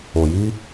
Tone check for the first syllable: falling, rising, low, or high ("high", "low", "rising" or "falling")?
low